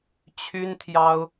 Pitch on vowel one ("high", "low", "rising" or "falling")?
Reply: high